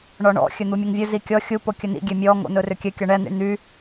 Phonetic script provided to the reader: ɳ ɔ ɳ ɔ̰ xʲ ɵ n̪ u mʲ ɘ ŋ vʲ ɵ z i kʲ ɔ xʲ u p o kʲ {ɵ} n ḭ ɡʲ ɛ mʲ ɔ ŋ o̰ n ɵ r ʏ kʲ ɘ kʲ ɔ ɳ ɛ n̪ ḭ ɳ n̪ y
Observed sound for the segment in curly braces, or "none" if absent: ɵ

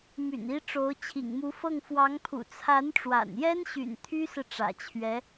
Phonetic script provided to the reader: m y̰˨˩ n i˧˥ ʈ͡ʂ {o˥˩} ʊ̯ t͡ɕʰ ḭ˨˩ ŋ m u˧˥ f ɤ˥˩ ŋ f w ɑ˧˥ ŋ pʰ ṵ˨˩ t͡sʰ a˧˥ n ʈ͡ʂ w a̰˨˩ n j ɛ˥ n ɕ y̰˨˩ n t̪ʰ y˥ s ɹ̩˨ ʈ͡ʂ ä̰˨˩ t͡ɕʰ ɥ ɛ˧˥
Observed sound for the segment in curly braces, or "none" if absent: o˧˥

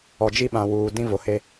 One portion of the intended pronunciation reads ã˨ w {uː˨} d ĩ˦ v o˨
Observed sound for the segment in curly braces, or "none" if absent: uː˨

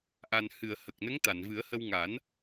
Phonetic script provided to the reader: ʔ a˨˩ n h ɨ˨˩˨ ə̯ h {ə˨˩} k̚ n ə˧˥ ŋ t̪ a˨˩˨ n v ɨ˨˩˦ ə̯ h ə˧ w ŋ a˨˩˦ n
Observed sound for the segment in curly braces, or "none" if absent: ə˨˩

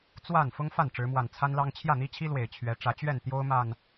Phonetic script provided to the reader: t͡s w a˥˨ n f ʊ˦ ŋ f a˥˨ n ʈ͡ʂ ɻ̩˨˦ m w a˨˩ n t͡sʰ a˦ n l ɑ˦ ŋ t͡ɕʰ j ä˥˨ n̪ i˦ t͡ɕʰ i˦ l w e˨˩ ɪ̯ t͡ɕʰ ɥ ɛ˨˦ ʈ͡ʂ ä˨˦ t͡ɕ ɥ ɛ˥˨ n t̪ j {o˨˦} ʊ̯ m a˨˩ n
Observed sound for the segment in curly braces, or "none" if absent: o˦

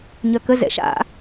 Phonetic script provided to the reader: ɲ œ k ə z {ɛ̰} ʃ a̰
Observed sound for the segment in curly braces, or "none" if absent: ɛ̰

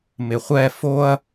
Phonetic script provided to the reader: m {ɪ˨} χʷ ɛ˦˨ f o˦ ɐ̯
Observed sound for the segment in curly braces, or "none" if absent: ɪ˨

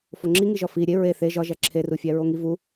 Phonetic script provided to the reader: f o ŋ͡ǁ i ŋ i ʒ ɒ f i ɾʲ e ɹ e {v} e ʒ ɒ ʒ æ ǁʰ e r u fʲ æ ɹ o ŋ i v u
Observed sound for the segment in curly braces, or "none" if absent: θ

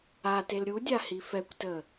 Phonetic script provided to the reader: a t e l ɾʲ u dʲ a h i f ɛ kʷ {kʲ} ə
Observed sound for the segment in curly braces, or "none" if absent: t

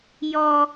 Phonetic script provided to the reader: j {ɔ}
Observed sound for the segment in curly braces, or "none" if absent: ɔ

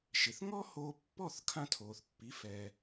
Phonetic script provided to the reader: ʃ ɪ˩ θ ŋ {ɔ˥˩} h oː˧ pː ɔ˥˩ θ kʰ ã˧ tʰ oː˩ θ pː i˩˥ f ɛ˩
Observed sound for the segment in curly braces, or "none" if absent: ɔ˥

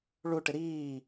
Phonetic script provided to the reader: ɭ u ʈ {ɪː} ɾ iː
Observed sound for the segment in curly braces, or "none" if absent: ɪ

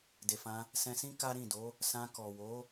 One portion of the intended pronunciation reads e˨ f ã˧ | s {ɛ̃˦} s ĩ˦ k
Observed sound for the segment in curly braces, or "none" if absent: ɛ̃˧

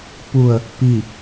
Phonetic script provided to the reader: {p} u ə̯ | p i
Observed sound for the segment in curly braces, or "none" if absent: p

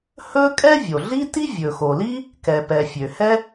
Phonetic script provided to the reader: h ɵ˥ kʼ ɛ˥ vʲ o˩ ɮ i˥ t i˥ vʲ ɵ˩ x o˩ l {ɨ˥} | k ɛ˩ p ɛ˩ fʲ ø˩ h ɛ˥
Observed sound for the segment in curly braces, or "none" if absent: i˥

